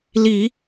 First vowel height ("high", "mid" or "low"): high